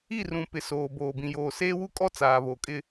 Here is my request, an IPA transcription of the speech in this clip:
i˦˨ r ũ˨ p ɪ˨ s oː˨ b oː˨ b ĩ˨ j oː˨ s eː˦ w u˦ kʼ ɔ˦ t͡s aː˨ β o˨ kʼ ɪ˦

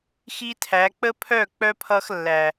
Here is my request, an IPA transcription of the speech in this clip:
x i˦ tʰ æ˨˦ k͡p ə˦ pʰ œ˦˨ k͡p œ˦ pʰ ʌ˦ x lː æ˨

